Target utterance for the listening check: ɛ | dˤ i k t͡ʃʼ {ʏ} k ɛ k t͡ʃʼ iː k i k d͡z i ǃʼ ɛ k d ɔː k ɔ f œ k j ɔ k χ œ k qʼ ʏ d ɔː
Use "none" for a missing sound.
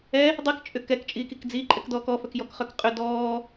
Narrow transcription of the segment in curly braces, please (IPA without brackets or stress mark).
ʏ